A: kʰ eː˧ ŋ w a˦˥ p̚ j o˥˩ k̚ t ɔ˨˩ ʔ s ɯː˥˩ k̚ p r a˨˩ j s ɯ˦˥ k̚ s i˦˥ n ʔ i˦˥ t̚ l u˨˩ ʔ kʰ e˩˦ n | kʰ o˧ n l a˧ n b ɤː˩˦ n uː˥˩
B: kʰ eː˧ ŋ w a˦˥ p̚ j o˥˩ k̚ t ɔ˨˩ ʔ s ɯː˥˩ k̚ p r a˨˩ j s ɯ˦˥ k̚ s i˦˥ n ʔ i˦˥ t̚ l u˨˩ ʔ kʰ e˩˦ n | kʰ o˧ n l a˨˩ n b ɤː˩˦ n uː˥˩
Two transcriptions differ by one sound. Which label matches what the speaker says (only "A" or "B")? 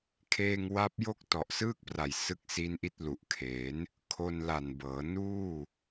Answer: B